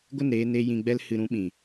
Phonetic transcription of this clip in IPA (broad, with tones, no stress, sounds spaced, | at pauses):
ɡʷ ə˦˨ n ɾ eː˧ n e˦ j ĩ˧ ɡ͡b ɛ˦ l h ɨ˧ ɾ ũ˦ ɓ ĩ˨